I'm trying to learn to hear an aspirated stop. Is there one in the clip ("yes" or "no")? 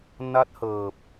no